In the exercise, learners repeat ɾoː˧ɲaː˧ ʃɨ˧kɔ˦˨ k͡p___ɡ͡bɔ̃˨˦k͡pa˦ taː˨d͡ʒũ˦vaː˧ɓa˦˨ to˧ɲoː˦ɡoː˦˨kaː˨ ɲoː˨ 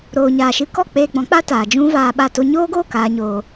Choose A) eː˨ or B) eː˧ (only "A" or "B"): B